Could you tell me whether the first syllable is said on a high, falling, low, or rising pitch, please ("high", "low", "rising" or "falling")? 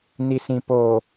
low